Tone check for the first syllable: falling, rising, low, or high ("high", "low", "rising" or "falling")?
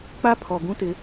high